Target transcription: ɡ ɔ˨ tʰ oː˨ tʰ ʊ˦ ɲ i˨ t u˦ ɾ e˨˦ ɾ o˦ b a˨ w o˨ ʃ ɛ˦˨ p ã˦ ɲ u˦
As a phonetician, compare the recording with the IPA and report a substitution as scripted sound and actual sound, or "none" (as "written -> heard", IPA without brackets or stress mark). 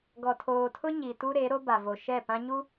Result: w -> v